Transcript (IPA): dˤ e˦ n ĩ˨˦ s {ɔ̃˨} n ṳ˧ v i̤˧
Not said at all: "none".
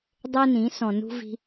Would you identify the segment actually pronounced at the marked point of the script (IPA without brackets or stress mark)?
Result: ɔ̃˨